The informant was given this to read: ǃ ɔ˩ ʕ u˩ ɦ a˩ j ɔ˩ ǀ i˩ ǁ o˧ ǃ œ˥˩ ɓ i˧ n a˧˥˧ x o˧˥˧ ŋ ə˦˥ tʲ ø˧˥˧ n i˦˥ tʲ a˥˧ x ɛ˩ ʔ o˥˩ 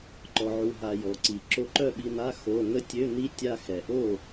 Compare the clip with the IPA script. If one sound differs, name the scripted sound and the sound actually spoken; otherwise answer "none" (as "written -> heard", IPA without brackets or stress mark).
none